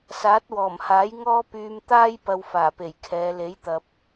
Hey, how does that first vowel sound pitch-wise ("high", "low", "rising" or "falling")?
rising